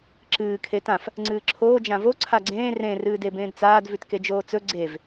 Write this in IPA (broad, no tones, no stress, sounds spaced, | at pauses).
ǁ ɨː kʰ e t ã f | ŋ͡ǀ ɨː ǁʰ oː d͡ʒ ã v o ǀʰ a ɡ͡ǀ ẽː r ẽ r ɨː d e b ẽː d t͡s aː d v ʉ t k e d͡ʒ oː t͡s ɵ ɡ͡ǀ e v